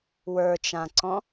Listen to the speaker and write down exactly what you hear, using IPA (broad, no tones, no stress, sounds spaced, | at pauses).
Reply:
w ə˞ t͡ʃ ã ǀ ɔ̃